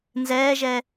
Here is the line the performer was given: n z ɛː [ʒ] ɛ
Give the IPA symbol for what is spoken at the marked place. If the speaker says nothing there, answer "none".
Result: ʒ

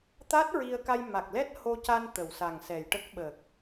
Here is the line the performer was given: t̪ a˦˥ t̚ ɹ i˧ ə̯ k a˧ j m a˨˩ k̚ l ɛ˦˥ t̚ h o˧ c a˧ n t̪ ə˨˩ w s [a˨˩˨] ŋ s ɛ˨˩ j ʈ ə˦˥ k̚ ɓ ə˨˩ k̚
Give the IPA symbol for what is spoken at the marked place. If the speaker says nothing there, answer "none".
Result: a˨˩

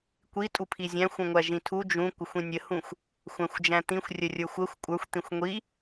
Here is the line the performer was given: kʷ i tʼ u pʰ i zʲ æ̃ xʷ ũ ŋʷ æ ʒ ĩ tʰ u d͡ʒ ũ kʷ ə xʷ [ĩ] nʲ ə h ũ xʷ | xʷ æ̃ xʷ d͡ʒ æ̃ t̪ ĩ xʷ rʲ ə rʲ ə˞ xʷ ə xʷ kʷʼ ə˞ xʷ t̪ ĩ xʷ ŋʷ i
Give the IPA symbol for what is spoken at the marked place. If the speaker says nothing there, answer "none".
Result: ĩ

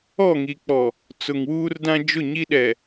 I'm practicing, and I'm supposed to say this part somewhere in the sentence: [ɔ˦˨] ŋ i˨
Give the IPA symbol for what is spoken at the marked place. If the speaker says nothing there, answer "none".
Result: ɔ˦˨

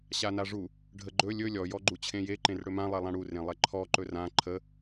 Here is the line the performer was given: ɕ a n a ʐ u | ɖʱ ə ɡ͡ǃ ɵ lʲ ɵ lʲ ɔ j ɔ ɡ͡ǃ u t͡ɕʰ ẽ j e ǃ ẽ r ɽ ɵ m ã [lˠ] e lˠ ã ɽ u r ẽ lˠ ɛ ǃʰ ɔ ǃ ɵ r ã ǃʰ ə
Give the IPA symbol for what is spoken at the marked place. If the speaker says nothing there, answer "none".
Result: lˠ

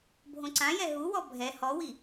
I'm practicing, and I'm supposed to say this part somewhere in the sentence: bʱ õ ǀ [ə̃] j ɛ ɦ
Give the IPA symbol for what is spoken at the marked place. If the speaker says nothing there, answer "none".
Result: ã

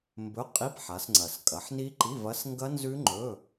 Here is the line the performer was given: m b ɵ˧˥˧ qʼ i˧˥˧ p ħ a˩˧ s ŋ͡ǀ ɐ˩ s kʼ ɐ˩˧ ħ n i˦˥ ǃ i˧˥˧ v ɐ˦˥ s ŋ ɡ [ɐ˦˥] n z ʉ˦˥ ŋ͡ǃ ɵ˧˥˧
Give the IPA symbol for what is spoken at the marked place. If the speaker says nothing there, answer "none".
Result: ɐ˦˥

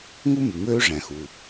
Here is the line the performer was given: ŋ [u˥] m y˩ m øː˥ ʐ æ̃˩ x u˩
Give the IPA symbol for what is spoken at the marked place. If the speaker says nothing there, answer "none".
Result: u˥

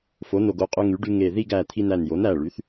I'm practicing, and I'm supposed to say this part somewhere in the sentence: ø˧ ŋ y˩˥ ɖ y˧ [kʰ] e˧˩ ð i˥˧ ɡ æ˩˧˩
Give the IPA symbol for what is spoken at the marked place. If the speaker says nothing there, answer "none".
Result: ŋ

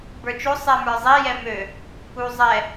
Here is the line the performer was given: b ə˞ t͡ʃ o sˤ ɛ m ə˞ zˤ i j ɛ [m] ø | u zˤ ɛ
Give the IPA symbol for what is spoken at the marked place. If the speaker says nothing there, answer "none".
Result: m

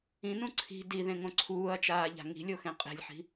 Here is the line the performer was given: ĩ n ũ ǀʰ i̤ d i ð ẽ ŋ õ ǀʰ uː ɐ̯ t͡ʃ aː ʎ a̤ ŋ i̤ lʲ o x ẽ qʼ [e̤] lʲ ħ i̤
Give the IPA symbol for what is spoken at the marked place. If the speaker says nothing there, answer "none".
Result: e̤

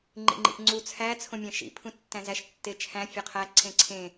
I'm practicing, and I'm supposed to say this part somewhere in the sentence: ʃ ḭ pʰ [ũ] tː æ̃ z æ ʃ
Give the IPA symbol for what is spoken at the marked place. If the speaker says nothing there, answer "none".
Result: ũ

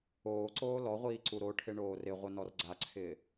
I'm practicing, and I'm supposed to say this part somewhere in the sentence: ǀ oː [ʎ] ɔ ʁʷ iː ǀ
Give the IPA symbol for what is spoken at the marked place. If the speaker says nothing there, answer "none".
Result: l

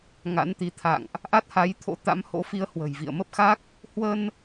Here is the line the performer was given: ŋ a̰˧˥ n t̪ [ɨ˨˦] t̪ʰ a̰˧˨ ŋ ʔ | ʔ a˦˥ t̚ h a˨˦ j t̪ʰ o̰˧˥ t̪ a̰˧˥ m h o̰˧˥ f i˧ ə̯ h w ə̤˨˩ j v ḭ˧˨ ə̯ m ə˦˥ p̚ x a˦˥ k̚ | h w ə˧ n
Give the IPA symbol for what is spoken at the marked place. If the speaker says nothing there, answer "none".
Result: i˨˦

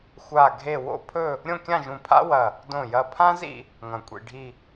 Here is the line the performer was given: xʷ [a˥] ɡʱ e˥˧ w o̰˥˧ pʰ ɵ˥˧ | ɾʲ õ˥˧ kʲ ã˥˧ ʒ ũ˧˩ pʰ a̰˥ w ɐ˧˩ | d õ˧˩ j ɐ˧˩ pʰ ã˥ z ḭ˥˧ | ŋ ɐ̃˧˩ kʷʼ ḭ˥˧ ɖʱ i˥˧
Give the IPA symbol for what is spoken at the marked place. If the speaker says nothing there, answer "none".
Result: a˥˧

